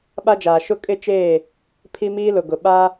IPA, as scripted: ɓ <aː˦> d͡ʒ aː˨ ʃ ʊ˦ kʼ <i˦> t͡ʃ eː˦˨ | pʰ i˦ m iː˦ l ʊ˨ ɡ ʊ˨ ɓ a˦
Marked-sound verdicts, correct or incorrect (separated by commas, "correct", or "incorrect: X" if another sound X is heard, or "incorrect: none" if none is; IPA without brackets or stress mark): incorrect: a˦, incorrect: ɪ˦